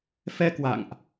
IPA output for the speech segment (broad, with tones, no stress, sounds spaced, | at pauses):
f ɛ˧ k w a̰˧˨ ŋ ʔ